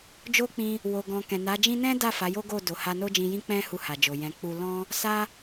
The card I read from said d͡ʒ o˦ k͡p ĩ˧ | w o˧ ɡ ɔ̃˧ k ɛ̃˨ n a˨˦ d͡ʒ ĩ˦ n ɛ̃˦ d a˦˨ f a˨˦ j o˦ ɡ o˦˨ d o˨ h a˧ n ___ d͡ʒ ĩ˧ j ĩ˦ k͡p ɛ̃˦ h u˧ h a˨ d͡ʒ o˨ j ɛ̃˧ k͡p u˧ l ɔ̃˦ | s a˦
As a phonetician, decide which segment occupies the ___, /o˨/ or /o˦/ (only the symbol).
o˦